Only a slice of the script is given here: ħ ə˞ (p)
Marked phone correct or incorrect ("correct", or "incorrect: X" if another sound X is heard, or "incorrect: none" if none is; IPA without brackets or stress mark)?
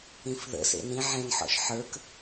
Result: incorrect: k